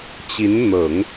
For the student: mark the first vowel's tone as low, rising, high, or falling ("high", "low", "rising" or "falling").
rising